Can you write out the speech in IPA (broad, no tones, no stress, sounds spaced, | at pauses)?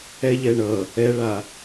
ɛ ʎ ɛ ɳ ʌ | ɛ ɭ a